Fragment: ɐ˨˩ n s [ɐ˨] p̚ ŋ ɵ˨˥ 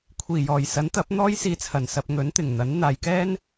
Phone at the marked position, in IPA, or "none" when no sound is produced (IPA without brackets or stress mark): ɐ˨